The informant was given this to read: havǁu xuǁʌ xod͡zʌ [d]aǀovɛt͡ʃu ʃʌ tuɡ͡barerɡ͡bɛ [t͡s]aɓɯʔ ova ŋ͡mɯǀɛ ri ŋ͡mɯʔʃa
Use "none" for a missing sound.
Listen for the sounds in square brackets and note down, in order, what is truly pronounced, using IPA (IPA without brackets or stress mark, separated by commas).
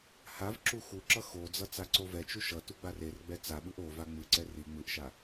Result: t͡s, t͡s